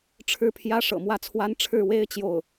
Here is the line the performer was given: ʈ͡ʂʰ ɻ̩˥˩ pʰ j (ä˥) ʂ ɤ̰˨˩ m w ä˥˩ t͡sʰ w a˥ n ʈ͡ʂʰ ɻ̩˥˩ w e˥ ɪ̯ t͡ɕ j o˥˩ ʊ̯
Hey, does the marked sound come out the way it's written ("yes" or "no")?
yes